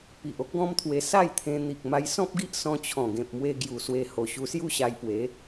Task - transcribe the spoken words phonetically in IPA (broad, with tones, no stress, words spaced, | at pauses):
pi˨ʔ o˦k̚ɡɔ̃˦mt̪ʰwe˧ sa˥˧j t̪ʰẽ˧n̪i˨k̚ ma˧jsɔ̃˦p̚ɡi˦ʔ sɔ̃˧t͡ɕʰɔ̃˨˩ɡẽ˨p̚mwe˧ ɡju˨˩swe˧ho˨˩ ɕu˧sju˦ɕa˧jpwe˨˦